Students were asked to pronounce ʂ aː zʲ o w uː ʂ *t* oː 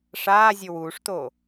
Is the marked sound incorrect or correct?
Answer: correct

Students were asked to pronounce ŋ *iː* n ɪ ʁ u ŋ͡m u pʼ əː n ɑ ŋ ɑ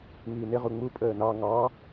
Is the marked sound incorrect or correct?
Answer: correct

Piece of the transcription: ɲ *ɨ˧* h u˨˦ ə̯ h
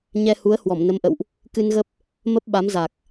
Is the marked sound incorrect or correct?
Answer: incorrect: ɛ˧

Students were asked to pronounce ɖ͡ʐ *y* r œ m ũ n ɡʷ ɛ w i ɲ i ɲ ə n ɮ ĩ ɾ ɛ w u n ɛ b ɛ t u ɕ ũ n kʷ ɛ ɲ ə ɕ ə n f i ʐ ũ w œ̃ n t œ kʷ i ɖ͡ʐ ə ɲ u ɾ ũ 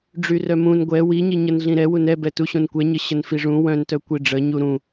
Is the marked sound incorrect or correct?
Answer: correct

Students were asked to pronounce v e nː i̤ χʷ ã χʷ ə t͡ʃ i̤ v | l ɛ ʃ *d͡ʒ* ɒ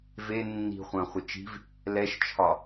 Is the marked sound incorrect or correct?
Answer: incorrect: t͡ʃʰ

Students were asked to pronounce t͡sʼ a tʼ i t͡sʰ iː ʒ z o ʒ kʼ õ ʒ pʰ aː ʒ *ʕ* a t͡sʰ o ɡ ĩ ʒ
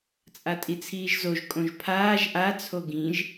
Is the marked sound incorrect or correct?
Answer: incorrect: ʔ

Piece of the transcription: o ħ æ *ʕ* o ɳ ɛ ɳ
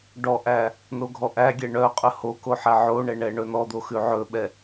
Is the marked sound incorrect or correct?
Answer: correct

